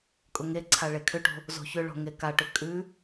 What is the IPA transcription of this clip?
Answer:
kʼʊŋeǀʰa ɭekʰʏʈo̤ | zo̤çʏɭo̤ ŋekaʈʏ kʼʉ

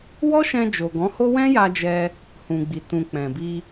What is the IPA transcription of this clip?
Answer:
wɔ˦ʃɛ̃˧ d͡ʒo˨ɡɔ̃˨˦ho˦ wɛ̃˦ja˧d͡ʒɛ˧ | hũ˨ɡ͡bi˨ tũ˨k͡pɛ̃˨bi˧

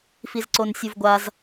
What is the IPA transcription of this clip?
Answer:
fizǀonsʲuvɡʷaz

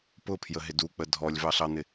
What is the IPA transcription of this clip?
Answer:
pʊpʰjəɦɪ duk͡pə dʱɔlʲvɑɬɑn̪ɪ

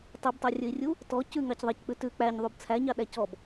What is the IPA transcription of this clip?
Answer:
tˤibtˤɑrʲɵi̯rʲu | tɔ cʉŋɑc ðˤɑck͡pʉ tʉ k͡pæɲðˤub t͡sʰæɲɑɗæ cɔb

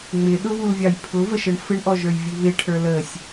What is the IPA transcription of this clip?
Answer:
ŋ͡mɪɗʊβulvʲɑj pʰʊvəʃəɳ fɪɳʔɔʒə˞jvʲu βɪʈʰə˞ ləsʲ

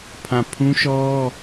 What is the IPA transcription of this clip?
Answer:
pʰã˦˨ pʰũ˦ʃɔ˦

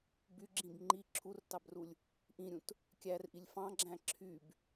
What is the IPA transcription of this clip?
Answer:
byɡ͡ǁĩb ŋ͡ǃi ǁʰurtɑbrulʲ | ʔĩɾʲũt | kʲærʔilʲ fɑ̃ɡ͡ǁæ̃ ǁʰyb

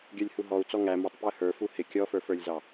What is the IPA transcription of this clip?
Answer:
ɡʲə˞lʲhuɦɔu̯ t͡sɔŋæ mətˤ pjəhə˞ fuhɪ kʲɔfə˞fə˞lʲzɑ

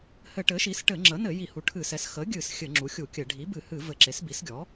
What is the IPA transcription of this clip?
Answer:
hɘ˧˩˧ʈɘ˩˥ʃi˩˥s ʈɘ˧˩˧ŋ͡ǁə˩˥nɘ˧˩˧ ji˧˩˧hu˩˥ʈʰɨ˧˩˧sɛ˩˥s xə˩˥ɡʲɨ˧˩˧s xʲɘ˧˩˧ŋ͡ǁu˩˥xʲu˧˩˧ kʲɘ˧˩˧ ɖʱi˩˥bɨ˧˩˧hɨ˧˩˧ vɘ˧˩˧ǁe˩˥sbi˩˥sɡʲɔ˩˥

